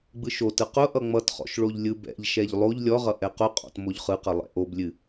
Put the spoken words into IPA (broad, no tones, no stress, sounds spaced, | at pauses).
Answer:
ɡ͡b ɯ ʃ o t ɯ q ʊ ʔ ʌ ŋ͡m ʌ t χ ɔ̰ ʃ ɭ o ʎ lʲ ɯ b ɛ̰ ʎ ʃ ɛ ʎ lˠ o ʎ lʲ ɔ ʁ ʌ ʔ ɛ q ʊ qʼ ɔ̰ t m o ʎ χ ɯ q ʌ lˠ ɛ̰ ʔ o b lʲ ɨ